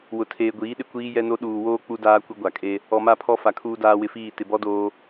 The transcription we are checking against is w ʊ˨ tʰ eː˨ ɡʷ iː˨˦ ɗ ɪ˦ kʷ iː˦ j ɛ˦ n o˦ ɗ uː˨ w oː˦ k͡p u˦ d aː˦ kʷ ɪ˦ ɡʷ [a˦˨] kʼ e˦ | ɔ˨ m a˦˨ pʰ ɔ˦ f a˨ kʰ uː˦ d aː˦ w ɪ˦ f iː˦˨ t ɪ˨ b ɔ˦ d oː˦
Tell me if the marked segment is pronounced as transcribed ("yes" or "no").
no